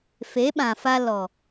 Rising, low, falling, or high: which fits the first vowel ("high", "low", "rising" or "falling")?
rising